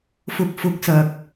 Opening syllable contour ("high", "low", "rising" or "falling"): low